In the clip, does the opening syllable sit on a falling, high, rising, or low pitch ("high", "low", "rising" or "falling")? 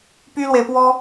high